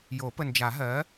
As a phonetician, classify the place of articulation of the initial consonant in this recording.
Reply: palatal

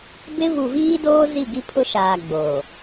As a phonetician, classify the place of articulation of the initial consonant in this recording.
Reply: labial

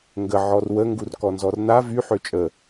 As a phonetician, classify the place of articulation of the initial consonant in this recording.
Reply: velar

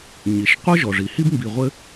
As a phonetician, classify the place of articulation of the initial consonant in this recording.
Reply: palatal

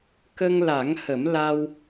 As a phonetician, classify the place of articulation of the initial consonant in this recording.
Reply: velar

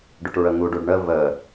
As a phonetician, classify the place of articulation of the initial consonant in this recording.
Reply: retroflex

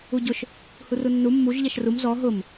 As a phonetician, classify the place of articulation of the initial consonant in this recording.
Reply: palatal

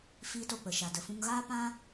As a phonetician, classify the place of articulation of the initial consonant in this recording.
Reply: labial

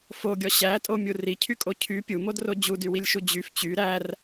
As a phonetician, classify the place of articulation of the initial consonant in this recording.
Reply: labial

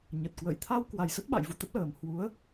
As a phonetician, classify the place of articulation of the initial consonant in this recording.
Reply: palatal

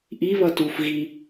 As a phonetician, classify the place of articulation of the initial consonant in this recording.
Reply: glottal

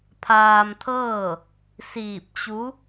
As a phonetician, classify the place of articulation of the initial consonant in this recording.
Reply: labial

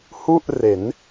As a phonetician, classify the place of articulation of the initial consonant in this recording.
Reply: glottal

